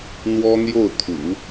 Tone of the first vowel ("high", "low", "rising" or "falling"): high